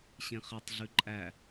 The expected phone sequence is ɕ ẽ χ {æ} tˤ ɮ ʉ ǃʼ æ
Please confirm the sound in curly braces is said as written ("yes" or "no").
no